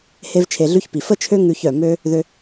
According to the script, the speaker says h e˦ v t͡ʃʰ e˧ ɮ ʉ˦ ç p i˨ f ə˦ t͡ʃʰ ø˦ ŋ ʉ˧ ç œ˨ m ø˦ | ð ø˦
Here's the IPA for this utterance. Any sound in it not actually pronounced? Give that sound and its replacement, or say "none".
none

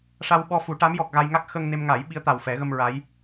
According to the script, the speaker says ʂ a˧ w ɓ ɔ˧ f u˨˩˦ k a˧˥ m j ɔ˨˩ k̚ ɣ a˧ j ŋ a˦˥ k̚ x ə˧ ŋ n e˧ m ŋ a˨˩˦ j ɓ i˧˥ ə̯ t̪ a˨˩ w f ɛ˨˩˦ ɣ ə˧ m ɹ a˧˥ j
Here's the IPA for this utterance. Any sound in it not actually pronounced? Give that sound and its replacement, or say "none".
k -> ʈ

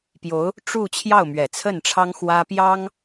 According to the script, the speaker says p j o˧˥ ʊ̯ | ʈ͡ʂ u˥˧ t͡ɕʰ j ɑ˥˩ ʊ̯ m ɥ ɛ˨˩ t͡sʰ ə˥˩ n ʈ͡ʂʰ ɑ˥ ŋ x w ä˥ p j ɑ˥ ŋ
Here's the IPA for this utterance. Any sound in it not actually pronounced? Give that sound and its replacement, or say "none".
none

